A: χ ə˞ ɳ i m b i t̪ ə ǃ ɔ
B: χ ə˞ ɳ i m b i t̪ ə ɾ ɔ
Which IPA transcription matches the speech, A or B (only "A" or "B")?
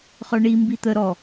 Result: B